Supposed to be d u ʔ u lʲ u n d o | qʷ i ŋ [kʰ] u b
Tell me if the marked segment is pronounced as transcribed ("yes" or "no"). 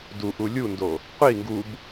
no